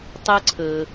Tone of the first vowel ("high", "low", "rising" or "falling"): high